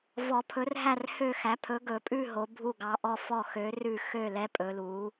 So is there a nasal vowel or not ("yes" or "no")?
no